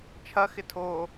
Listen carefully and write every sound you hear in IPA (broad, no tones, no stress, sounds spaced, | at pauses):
t͡ʃʰ ɐ x ɪ tʰ o